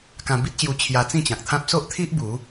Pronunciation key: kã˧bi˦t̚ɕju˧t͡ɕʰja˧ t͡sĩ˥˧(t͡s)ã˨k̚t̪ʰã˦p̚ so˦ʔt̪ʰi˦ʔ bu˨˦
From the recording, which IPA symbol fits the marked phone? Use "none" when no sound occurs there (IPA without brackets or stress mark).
t͡ɕ